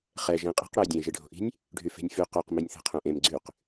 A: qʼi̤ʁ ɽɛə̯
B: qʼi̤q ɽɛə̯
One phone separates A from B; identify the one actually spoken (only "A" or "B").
B